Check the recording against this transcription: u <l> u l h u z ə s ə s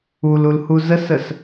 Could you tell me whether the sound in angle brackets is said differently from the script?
no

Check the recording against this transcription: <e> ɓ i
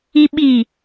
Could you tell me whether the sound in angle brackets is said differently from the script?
yes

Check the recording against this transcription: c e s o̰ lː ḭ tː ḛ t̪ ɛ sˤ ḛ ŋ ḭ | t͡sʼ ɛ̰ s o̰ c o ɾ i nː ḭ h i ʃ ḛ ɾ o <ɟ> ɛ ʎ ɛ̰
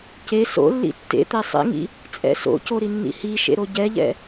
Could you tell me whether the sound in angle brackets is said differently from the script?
no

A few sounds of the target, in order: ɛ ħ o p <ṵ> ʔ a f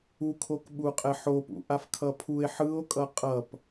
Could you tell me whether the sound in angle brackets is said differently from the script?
no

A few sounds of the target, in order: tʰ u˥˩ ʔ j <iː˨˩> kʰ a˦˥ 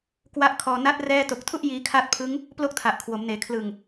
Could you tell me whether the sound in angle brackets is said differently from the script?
yes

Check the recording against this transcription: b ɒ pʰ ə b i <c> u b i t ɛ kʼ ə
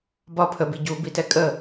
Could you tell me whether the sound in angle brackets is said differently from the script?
yes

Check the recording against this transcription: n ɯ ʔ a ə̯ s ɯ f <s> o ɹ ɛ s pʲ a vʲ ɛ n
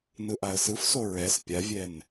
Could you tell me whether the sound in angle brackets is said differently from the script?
no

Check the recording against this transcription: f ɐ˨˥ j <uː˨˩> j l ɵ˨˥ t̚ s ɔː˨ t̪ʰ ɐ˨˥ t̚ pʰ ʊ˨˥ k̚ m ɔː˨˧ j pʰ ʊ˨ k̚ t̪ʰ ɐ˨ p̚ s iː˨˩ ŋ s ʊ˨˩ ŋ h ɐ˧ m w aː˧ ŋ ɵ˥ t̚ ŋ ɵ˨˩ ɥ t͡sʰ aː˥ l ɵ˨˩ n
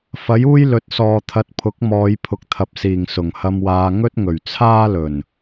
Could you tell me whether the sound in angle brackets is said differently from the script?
yes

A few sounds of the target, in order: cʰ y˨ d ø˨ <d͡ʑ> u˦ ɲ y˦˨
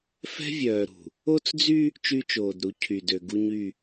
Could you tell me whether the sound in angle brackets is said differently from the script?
yes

